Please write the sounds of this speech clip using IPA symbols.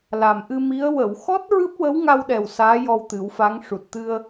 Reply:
la˨˩mʔɨ˧mi˧˥ə̯ wə˨˩˨wxɔ˦˥t̚ ɹɨ˦˥p̚wə˧˥wŋa˧wɗɛ˨˩w saː˧˥jɔ˧wt̪ɨ˨˩˦wfa˧˥ŋ ʂu˨˩t̚t̪ɨ˧ə̯

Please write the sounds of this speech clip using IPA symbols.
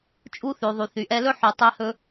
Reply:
t͡ʃʼu˥θʉ˩ðˤy˩ θy˩ʔɛ˧lɵ˥ ħy˩tˤɛ˧hɵ˧

